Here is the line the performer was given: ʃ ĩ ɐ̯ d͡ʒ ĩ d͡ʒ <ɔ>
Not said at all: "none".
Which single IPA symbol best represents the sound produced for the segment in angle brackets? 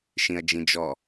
ɔ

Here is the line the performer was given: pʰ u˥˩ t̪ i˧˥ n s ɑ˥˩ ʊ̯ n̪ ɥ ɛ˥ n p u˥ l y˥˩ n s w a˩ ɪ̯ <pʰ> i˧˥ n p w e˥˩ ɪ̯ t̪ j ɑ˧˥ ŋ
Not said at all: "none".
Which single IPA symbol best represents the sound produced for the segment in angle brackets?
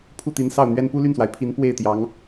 pʰ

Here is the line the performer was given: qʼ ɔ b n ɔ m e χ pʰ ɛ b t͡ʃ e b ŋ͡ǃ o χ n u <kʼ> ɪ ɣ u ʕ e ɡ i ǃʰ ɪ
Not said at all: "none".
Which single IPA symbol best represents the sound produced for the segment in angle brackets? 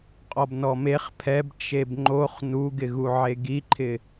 ɡ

